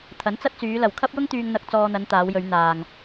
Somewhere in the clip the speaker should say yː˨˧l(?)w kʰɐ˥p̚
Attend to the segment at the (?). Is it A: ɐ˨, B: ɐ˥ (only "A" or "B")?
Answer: A